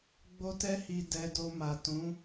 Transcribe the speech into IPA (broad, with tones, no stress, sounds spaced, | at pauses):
ɡ͡b o˦ t ɛ˦ h i˧ d ɛ˧ d o˧ m a˨ t ũ˨˦